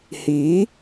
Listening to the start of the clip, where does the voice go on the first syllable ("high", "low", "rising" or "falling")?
rising